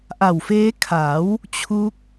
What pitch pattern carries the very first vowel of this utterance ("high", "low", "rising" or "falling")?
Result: low